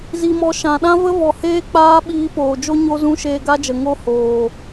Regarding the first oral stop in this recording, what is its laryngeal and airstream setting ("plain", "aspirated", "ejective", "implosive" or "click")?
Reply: implosive